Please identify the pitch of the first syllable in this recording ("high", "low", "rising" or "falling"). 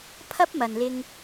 high